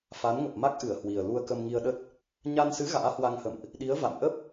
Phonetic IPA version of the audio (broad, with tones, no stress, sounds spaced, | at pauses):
f a˨˦ n ŋ ə˨˩ p̚ m a˦˥ k̚ ʔ ɨ˧˩ ə̯ h w i˨˩ ə̯ l u˧ ə̯ k ə˧ m ŋ i˧ ə̯ ɗ ə˦˥ t̚ | ɲ a˧ n s ɨ˨˦ ɣ a̰ː˧˥ h w a˧ ŋ h ə̰˧˨ m ʔ | ɗ i˨˦ ə̯ v a̰˧˨ m ʔ ə˦˥ p̚